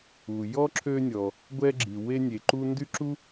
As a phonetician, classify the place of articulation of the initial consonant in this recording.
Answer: palatal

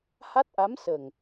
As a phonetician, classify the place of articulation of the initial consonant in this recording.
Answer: glottal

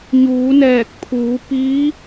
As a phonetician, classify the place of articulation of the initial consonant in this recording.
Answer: palatal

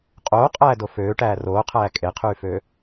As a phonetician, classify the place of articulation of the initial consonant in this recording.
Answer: uvular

